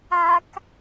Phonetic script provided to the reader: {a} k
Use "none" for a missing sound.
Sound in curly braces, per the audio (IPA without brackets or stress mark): a